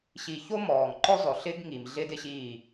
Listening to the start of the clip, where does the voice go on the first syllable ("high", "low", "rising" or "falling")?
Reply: low